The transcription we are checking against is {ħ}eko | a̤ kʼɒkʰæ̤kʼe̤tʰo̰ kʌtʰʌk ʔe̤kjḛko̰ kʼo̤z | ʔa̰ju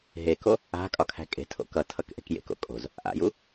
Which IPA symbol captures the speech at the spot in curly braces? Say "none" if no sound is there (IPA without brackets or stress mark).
ɦ